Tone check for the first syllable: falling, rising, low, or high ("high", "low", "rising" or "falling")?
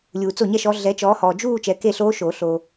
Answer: low